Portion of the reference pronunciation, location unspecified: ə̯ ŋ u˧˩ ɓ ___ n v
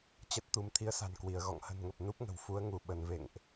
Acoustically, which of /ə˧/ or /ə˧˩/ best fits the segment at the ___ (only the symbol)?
ə˧˩